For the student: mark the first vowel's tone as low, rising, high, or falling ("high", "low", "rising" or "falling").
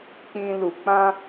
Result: high